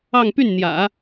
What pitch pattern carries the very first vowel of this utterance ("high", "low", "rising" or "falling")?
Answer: falling